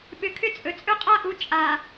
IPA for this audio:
ɓ ʏ˨ kʰ ʏ˦ t͡sʼ ɵ˨ t͡sʼ ɵ˦ qʼ a˦ ʔ u˨˦ t͡ʃʼ a˨

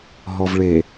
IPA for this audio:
ɦ ɔ v ɭ e

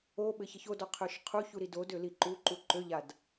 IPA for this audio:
o ɓ ɘ ç ɘ ç o d ɔ qʰ ø ʃ qʰ u ç u ɾ i d o d ø l i ǃ u ǃ u ǃ ø ʎ a d

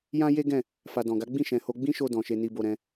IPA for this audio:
j ã˦ j e˦ ɡ ɛ̃˦˨ | f a˨ d ɔ̃˨ ɡ a˨˦ ɡ͡b ĩ˦˨ ʃ ɛ̃˨ h o˧ ɡ͡b ĩ˦ ʃ o˧ d ɔ̃˨ ʃ e˧ n i˧ b o˧ ɾ ɛ̃˦

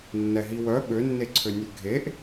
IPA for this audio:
nː ɛ ɦ i w œ ɓ ø nː e ǀʰ ø nʲ ʉ ɡʱ e ʔ

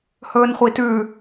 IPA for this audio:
h ɵː n χʷ i t ʉ

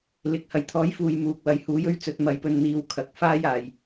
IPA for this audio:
l ɪ˨ k̚ h ɐ˨ j t̪ʰ ɔː˨˥ j f uː˨ j m uː˨ k̚ w ɐ˨ j h uː˨˧ j ɵ˥ ɥ t͡s ɵ˧ t̚ m ɐ˧ j p ɵ˧ n n̪ iː˨˧ w kʰ ɐ˨ k̚ f aː˥ j aː˨˩ j

